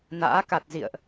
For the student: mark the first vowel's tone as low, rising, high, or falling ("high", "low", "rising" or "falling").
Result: rising